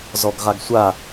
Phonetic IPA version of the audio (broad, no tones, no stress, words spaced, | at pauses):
zɔɡʁaɡsʷa